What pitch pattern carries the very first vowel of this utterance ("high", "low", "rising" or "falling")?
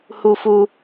high